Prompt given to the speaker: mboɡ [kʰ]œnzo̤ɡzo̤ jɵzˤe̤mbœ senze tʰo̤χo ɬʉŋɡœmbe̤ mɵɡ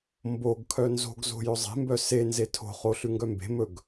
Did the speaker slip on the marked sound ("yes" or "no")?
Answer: no